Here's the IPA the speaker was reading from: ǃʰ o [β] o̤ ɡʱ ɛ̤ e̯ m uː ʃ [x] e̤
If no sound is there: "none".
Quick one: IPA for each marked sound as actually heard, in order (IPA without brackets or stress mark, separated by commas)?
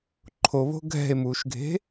β, ɡʱ